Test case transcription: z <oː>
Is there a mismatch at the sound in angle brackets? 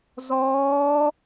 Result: yes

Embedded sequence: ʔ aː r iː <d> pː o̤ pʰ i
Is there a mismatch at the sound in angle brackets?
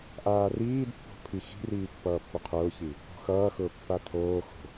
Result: no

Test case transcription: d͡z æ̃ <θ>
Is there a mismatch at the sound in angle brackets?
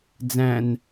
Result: yes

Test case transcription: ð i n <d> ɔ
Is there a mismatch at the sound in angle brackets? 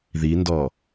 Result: no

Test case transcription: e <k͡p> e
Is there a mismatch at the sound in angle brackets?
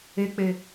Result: no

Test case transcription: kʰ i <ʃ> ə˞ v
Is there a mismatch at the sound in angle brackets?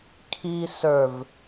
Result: yes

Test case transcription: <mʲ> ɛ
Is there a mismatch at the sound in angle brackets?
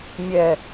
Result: no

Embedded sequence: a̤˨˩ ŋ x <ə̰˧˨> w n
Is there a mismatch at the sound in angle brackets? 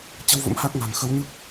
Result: yes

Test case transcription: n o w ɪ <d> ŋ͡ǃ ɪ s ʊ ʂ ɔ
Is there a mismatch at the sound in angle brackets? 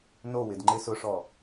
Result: no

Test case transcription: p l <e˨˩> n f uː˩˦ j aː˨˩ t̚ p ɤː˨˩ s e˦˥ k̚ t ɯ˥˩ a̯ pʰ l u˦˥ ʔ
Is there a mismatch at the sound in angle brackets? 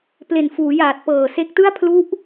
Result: no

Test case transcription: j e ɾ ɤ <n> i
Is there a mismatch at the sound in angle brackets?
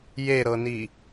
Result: no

